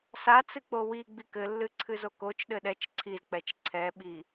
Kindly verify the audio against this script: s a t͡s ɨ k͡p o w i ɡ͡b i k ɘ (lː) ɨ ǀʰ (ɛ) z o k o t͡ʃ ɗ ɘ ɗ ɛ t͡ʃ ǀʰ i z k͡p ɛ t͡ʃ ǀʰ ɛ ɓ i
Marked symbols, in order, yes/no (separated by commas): yes, no